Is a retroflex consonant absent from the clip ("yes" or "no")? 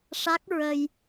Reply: no